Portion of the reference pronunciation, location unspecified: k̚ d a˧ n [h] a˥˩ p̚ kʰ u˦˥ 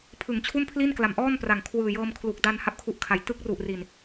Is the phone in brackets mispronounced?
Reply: no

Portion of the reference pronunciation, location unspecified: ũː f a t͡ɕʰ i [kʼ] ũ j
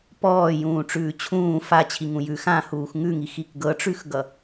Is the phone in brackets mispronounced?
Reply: yes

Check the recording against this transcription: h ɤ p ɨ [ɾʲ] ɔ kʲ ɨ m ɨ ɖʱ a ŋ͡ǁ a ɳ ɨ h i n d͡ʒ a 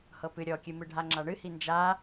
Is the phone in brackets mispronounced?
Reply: no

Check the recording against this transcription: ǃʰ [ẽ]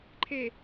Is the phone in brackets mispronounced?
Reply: yes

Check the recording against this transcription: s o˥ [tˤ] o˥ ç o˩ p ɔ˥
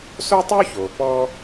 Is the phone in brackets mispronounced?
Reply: no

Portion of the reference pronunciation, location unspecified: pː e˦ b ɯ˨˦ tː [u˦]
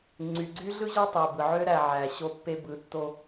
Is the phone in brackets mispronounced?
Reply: yes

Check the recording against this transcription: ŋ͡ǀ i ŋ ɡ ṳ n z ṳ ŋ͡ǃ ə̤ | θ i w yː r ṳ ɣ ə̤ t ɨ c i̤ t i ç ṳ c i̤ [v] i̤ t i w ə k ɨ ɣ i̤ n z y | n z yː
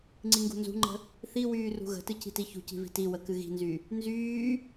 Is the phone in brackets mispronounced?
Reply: no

